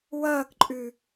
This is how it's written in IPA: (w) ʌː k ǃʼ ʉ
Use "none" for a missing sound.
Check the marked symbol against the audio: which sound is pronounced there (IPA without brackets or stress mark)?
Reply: w